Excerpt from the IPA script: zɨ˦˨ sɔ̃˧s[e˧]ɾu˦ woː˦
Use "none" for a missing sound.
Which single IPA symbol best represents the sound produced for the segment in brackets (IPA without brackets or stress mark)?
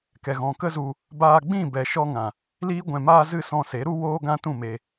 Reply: e˨˦